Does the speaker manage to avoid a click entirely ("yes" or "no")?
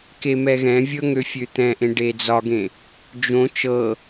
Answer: yes